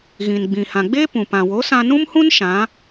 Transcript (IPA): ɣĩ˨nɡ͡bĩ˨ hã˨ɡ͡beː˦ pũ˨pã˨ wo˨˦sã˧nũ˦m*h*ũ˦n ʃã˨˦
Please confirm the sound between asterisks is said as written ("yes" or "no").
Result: yes